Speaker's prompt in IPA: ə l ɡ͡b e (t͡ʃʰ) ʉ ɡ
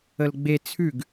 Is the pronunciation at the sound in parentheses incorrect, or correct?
incorrect